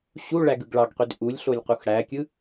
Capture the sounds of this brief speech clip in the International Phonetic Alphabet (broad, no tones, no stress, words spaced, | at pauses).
ɕuɭæɡɯɡ ɭɑɡqyd ʔulʲɬolʲqux ɽækʲɯ